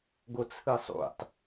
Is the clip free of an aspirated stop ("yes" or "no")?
no